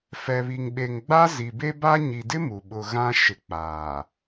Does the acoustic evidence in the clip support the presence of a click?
no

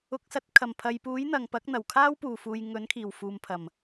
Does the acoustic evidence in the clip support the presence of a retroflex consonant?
no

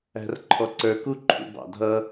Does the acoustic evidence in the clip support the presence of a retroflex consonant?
no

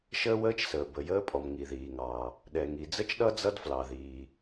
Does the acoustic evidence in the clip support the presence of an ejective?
yes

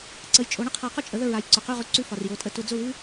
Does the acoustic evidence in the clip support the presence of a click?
yes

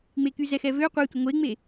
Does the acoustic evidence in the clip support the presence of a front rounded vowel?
yes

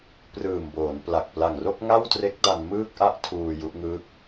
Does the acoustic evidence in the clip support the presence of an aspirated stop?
yes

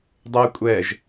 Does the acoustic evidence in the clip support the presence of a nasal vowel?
no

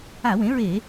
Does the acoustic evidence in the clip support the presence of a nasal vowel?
yes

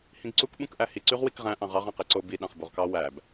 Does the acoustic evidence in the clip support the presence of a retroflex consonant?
no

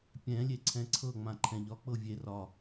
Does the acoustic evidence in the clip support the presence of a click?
yes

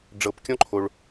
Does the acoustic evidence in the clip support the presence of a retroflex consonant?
yes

